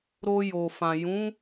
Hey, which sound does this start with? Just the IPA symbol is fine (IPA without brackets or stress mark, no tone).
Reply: ɾ